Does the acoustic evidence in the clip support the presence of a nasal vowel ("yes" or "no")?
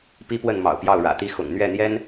no